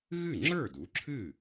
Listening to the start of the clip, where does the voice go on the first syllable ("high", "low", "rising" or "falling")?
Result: falling